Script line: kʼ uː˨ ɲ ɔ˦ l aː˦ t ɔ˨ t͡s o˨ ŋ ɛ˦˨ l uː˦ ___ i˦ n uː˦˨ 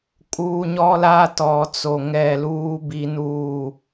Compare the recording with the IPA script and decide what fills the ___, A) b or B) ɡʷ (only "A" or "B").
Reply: A